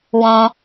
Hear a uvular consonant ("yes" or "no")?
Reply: no